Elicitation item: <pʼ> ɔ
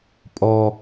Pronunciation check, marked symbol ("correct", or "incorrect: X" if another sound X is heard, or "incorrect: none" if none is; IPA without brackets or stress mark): correct